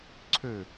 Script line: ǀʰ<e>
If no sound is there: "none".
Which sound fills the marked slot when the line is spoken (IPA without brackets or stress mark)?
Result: ø